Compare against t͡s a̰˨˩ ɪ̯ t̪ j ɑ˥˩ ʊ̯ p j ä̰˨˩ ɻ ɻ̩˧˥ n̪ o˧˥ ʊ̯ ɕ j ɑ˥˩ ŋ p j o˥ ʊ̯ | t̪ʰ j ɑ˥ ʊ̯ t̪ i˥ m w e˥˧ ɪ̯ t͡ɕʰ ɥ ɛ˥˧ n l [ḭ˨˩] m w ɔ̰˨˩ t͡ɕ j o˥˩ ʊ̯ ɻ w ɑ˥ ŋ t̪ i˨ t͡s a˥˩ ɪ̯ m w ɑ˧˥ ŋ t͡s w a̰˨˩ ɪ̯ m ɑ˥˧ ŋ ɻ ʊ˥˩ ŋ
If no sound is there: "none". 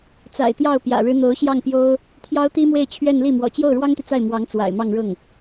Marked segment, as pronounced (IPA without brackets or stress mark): i˥˩